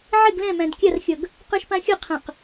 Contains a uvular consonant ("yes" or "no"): yes